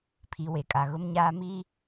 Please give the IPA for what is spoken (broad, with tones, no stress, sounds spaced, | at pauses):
pʰ i˨ w e˨ kʼ a˨ ɣ ʊ˦ m ɲ aː˦ m i˦